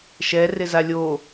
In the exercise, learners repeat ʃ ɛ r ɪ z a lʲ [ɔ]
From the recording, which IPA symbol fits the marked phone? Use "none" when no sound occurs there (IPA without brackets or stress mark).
o